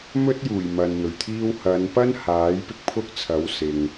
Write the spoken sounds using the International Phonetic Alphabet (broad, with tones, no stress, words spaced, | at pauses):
mɵ˥t̚juː˨˩j mɐ˨nn̪ɵ˨˩ɥt̪ʰiː˥w hɐ˨˧npɐ˥nhaː˨˥j pɪ˥k̚pʰʊ˥k̚t͡sʰɐ˨˥w sɪ˨ŋ